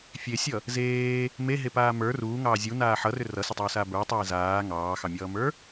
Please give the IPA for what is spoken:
fʲ e sʲ ʌ | z eː | m e ɦ e p aː m ə˞ r uː ŋ ɑː zʲ u n aː ħ ʌ r ʏ r ʌ s ʏ tˤ ʏː s aː b ə˞ tˤ eː z aː ŋ ɑː x ɑ mʲ ʌː m ə˞

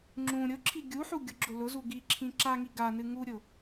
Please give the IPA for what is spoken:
ŋ͡ǁ ũ ɾʲ ʊ ǁʰ i ɡʲ u ħ u ɡʲ ʊ ɡ͡ǁ ʊ l ʊ z u ɡ i ǁʰ ĩ ǁ a ŋ i ɡ a n ɨ ŋ u ɾʲ ʊ

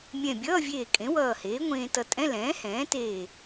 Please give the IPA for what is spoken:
mʲ ɛ̃˧˩ bʲ ʌː˧˥˧ vʲ eː˧˩ kʼ ẽ˩˥ w ʌː˧˩ h eː˩˥ ŋʷ ẽː˧ t ʌ˧ tʼ ɛ̃˧˥˧ l ɛ̃ː˩˥ h ɛ̃ː˩˥ t eː˧˩

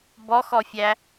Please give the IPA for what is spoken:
b ɔ x ɔ fʲ æ

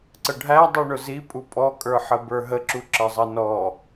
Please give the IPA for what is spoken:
ǀ ə ɖʱ æ dˤ u ɳ ʊ z i pʼ u pʼ ɔ kʼ ə˞ ħ ə b ə˞ ɦ ə ǁ u ǁ ə zˤ ʌ n ɔ

